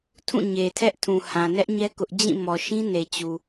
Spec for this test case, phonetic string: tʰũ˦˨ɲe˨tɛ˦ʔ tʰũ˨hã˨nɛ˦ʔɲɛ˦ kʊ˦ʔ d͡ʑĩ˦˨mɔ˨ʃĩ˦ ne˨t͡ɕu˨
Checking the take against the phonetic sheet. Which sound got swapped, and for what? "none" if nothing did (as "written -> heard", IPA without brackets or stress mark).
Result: t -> tʰ